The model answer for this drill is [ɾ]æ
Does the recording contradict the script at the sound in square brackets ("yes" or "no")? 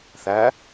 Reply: yes